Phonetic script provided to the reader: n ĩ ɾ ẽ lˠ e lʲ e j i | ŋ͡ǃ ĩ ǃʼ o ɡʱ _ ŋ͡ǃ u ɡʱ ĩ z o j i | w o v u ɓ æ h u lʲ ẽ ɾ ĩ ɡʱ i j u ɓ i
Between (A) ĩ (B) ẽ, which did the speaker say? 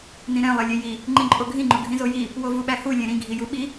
A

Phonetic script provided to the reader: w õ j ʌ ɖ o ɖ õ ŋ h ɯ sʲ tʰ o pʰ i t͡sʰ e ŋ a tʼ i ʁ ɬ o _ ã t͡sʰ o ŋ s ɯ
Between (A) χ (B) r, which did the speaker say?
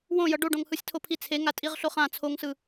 A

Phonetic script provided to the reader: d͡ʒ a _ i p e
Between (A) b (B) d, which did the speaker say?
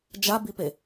A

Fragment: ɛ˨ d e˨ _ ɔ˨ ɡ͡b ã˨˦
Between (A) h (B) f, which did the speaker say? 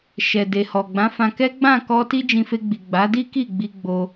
A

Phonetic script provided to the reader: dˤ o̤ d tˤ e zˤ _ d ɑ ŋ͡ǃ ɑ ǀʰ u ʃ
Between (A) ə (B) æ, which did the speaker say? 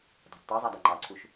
B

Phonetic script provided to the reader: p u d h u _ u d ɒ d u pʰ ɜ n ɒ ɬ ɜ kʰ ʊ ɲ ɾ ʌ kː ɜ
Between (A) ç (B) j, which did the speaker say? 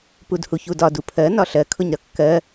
A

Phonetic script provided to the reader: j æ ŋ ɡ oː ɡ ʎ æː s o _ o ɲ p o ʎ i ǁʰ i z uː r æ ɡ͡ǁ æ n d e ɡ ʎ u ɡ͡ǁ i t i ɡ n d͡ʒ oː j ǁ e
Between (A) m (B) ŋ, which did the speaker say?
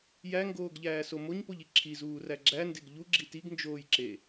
A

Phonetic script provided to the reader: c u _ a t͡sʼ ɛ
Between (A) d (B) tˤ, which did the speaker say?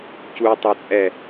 B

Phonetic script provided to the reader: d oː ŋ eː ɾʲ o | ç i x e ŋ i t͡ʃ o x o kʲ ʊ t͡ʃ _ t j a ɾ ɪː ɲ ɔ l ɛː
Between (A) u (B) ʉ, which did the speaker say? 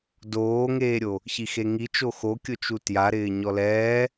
A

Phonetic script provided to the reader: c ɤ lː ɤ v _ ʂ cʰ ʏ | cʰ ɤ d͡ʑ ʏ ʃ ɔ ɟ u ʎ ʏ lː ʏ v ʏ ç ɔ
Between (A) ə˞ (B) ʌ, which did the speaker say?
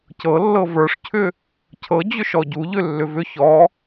A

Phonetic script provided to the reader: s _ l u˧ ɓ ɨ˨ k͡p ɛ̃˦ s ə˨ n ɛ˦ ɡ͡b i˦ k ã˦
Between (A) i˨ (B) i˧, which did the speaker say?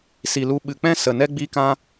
A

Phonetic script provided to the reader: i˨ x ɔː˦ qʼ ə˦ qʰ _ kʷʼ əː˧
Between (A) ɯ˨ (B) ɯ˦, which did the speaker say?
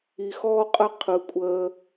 A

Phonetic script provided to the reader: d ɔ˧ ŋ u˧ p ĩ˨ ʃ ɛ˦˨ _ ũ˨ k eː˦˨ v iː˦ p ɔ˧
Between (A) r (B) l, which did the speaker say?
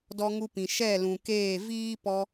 B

